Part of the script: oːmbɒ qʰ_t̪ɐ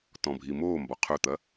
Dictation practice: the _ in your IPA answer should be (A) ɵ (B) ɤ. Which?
A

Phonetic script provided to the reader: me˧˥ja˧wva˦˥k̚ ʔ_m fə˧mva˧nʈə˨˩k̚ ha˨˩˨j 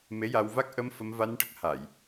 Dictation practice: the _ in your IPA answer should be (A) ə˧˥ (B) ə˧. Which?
B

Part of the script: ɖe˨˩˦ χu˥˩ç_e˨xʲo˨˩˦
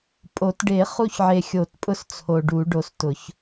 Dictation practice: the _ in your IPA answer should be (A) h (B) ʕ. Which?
B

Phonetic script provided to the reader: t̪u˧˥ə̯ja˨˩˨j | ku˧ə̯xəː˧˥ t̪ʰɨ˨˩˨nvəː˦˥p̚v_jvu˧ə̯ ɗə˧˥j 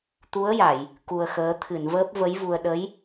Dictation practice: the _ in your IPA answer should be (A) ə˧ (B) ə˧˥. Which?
B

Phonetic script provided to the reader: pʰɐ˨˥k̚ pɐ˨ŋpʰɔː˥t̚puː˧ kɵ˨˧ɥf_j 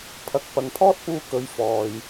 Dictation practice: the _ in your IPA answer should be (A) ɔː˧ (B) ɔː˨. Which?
B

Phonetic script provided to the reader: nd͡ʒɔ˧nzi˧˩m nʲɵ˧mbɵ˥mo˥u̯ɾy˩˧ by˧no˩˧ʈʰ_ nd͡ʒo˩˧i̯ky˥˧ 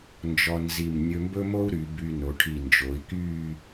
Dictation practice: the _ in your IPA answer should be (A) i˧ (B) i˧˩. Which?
B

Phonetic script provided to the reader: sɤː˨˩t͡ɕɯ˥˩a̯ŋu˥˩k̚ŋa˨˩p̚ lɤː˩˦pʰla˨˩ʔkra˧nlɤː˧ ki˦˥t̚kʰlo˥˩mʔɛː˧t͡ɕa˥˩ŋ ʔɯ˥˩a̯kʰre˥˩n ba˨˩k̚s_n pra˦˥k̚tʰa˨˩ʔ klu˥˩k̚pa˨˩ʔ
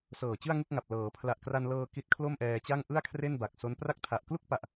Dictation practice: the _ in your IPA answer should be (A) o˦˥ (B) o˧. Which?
A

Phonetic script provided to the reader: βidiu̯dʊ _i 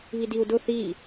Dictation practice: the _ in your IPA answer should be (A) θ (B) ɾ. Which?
A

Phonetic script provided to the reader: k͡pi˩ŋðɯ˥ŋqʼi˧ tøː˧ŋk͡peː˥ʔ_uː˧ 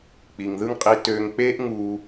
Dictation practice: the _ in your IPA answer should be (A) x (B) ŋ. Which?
B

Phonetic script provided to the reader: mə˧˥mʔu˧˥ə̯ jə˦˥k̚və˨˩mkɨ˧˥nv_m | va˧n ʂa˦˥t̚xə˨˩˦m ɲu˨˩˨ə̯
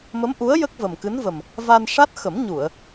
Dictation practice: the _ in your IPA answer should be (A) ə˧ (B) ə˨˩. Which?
B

